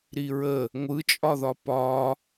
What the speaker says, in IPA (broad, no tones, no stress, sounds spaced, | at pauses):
ɾ i ɹ ə | ŋʷ ɯ t͡ʃʼ ɒ ð ɒ p ɒ